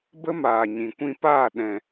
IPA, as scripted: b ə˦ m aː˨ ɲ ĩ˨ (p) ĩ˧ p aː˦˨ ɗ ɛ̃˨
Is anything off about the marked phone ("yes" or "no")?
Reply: yes